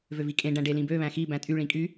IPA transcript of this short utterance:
vøvikʼẽ ɖæ̃ɖelĩbø βæ̃xi bæ̃tʼy ɭĩkʼy

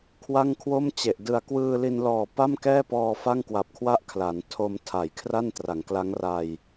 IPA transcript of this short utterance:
kʰwa˥˩ŋkʰwo˥˩mt͡ɕe˨˩ʔ dɯ˨˩a̯kwɯː˧li˧nlɔː˨˩ pa˥˩mkɛː˥˩pɔː˧ fa˥˩ŋkwa˨˩p̚kʰwa˥˩ʔ kʰla˩˦n tʰo˧mtʰa˩˦jkʰra˥˩n tra˩˦ŋkla˦˥ŋra˧j

